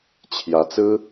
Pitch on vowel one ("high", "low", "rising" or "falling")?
rising